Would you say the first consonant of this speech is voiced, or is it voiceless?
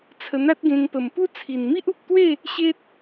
voiceless